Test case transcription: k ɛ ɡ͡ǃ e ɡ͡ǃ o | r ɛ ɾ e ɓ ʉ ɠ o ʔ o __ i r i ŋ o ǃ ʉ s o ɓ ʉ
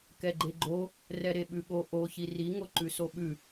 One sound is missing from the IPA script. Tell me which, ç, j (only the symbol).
ç